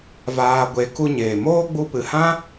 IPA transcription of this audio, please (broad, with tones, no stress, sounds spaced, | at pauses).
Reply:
v aː˧ ɡʷ e˨˦ k u˧ ɲ eː˨ m oː˦ ɡ͡b u˧ p ɨ˨ h ã˦